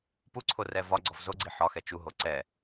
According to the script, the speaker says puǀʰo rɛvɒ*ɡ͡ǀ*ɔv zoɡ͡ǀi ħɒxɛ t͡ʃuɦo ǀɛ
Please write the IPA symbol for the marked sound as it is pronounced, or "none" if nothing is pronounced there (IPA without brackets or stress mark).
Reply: ɡ͡ǀ